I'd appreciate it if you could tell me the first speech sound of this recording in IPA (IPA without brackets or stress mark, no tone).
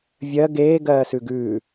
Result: vʲ